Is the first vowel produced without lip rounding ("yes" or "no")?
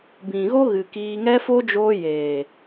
yes